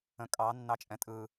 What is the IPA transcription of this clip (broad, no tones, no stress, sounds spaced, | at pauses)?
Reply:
ə̃ kʼ ɑ nː ɑ t͡ʃʼ ɛ̃ tʼ ɯ